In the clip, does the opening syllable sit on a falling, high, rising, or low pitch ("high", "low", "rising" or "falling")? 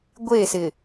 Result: falling